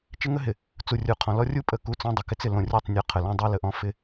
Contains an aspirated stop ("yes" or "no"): yes